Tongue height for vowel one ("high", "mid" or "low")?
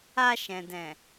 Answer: low